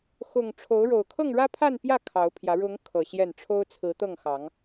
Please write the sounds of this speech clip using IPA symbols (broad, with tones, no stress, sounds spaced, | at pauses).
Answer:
x ʊ˨˩ ŋ ʈ͡ʂʰ o˨˦ ʊ̯ ɻ o˨˩ ʊ̯ kʰ ɤ˥˨ ŋ ɻ ä˦ pʰ a˥˨ n p j ä˥˨ kʰ ɑ˨˦ ʊ̯ pʰ j ä˨˦ ɻ ʊ˨˦ ŋ kʰ ɤ˨˩ ɕ j ɛ˥˨ n ʈ͡ʂʰ o˦ ʊ̯ t͡sʰ ɹ̩˨˦ t̪ ɤ˥˨ ŋ x ɑ˨˦ ŋ